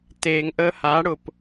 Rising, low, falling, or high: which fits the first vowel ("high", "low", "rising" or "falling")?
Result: low